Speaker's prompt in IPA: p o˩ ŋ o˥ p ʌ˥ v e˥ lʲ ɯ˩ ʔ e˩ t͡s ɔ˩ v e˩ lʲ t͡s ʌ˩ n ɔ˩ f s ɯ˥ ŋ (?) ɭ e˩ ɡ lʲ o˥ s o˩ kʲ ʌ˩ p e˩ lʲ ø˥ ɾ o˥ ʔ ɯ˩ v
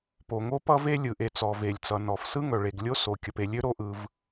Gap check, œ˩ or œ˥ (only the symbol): œ˩